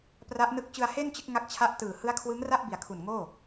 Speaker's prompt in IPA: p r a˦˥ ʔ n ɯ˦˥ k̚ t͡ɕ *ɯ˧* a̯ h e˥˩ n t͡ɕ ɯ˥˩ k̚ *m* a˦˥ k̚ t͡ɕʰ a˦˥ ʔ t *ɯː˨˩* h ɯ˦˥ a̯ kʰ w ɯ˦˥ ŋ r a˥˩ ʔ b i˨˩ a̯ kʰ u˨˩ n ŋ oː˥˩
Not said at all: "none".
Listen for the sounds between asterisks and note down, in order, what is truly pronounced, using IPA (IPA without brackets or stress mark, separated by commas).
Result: ɯ˧, ŋ, ɯː˨˩